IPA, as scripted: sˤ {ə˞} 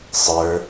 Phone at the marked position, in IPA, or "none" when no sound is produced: ə˞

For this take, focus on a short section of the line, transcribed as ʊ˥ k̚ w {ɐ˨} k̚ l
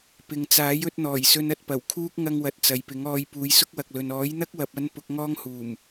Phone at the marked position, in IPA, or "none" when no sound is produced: ɐ˨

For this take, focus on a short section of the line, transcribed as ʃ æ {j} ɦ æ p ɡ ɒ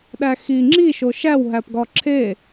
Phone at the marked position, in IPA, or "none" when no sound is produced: w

